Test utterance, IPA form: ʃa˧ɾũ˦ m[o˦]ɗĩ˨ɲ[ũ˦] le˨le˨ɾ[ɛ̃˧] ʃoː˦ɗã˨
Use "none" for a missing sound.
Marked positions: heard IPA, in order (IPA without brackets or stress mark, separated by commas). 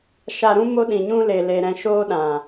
o˦, ũ˦, ɛ̃˧